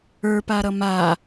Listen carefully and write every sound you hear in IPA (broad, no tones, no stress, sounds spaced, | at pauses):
ə˞ p a ɾ ʌ m a